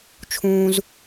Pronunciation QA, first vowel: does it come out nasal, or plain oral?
nasal